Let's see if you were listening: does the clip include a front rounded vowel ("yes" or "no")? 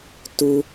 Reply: no